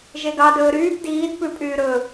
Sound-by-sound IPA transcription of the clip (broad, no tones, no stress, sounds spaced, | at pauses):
ʒ e ɡ ɑ d ɵː ɾ yː p d iː d p ʉ pʼ yː ɾ ɵ